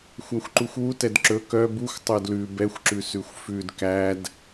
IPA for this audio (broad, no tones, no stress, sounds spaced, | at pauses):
xʷ æ xʷ ǃ u xʷ w u t ɛ d ǁ ɵ k œ b u xʷ tˤ œ d l ʉ b ɛ xʷ ǁ ʉ s ʉ xʷ f ʉ d k æ d